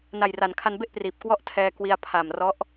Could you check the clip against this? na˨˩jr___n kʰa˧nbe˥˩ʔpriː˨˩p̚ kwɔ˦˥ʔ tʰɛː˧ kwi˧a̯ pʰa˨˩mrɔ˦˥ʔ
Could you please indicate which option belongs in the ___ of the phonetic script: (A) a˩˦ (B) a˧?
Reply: A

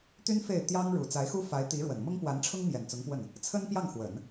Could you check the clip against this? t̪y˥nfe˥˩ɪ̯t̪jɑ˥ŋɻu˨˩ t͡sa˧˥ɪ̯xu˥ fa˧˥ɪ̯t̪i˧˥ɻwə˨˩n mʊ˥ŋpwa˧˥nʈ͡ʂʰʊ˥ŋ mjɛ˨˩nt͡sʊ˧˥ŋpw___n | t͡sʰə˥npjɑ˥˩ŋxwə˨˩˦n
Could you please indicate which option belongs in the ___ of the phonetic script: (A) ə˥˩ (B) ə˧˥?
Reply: A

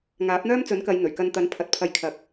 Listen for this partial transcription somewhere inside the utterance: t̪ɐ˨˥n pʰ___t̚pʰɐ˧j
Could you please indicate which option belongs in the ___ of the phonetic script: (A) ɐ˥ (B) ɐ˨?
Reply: B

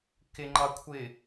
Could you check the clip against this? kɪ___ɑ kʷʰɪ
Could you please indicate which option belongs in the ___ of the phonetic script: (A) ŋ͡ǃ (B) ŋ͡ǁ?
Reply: A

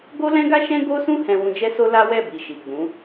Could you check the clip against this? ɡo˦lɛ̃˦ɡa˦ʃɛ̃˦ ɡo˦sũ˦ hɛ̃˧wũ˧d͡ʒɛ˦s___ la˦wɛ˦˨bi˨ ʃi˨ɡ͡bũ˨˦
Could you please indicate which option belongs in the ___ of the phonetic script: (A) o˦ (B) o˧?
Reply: A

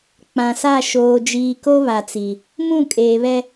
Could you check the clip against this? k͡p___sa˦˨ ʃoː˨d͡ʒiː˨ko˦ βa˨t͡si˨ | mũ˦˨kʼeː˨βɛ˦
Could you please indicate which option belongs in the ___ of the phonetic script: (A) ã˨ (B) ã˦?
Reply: A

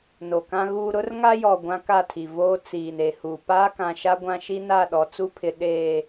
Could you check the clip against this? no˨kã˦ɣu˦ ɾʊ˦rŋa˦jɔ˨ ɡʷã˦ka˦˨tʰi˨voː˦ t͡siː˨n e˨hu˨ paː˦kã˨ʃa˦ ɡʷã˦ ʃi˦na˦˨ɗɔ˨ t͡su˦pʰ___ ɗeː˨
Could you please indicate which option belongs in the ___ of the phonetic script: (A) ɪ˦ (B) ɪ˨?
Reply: B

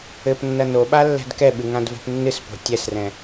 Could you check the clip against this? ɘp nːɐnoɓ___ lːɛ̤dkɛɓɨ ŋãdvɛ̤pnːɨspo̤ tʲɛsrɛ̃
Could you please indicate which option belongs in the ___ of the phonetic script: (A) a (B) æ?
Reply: A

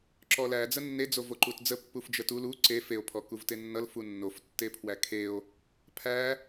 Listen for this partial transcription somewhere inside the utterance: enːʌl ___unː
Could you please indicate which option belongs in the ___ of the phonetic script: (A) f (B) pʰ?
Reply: A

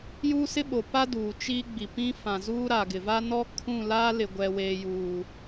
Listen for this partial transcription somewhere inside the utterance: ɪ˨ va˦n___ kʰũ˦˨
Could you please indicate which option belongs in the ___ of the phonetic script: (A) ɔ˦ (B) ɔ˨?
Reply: A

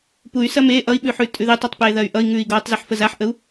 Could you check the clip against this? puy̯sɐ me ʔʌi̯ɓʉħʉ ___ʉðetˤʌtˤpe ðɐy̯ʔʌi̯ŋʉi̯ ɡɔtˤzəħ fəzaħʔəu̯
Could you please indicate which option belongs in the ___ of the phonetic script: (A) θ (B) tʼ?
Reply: B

